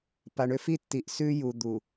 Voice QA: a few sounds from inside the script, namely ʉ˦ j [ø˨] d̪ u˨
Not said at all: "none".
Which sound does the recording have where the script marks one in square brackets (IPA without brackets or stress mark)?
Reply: u˨